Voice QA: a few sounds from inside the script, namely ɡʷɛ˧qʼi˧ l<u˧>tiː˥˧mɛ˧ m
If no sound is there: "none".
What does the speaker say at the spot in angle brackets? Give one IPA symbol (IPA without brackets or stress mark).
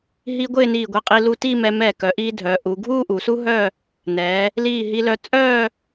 u˧